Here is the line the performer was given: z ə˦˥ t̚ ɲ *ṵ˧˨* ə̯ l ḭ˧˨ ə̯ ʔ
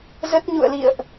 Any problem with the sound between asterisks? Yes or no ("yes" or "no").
no